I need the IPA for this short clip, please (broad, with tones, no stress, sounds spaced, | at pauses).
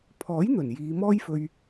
pʰ ɔː˨˥ j n̪ ɵ˨˩ n j iː˨˧ m ɔː˥ j f ɵ˧ ɥ